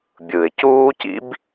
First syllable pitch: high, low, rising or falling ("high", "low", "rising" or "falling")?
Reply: low